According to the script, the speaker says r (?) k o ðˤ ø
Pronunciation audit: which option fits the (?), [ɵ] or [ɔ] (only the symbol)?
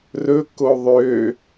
ɵ